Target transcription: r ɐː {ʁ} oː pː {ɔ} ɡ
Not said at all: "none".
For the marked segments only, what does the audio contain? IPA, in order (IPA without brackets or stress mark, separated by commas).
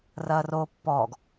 r, ɔː